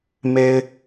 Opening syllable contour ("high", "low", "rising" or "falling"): high